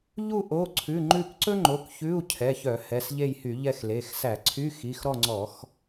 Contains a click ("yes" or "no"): yes